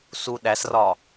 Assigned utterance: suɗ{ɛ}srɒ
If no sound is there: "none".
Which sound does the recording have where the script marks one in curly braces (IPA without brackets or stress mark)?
æ